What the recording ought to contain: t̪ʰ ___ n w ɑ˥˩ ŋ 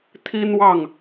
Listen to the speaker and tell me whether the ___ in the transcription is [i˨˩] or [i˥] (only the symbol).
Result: i˥